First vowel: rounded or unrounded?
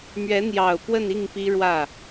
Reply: unrounded